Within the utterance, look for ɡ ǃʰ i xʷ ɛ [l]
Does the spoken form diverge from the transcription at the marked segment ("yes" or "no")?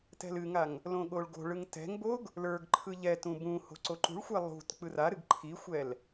no